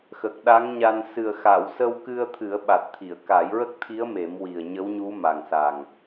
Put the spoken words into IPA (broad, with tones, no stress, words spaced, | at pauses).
xə˨˩k̚ɗa˧˥ŋɲa˧n sɨ˨˩ə̯xa˨˩˨wsə˧wkɨ˧ə̯ t̪ʰɨ˨˩˦ə̯ɓa˨˩t̚t̪ʰi˨˩˨ə̯ ka˨˩˦jɹə˦˥k̚t̪ʰi˧˥ə̯ me˨˩˦mwi˨˩ə̯ɲə˧˥wɲu˧˥ ma˨˩ŋsa˨˩ŋ